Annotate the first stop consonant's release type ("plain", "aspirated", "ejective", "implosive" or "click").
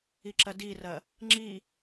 click